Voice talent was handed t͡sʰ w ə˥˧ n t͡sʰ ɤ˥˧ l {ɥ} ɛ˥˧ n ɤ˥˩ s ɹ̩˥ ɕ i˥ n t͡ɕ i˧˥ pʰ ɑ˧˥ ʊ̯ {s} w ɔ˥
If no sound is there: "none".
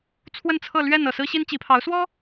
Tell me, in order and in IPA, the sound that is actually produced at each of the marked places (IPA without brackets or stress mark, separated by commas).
ɥ, s